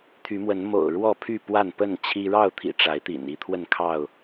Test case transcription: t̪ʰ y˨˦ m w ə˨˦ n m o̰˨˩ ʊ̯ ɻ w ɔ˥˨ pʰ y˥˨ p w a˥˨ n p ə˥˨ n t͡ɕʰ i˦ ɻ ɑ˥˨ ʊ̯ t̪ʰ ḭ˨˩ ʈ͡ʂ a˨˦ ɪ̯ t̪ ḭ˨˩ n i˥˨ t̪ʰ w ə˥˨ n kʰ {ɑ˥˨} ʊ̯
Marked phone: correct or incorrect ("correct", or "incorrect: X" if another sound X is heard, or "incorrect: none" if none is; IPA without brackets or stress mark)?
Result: correct